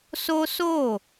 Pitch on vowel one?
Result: high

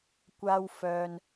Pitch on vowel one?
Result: high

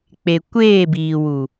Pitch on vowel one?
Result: low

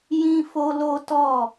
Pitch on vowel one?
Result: high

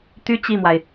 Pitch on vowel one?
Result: high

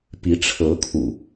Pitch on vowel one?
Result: rising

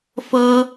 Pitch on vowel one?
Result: high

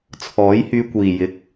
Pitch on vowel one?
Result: rising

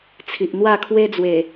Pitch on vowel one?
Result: low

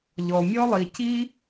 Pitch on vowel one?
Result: low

